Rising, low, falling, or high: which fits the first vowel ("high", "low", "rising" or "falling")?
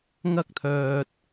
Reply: high